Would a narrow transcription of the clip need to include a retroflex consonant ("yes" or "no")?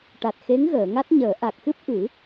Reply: yes